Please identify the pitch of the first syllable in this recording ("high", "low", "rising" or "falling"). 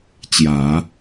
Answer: low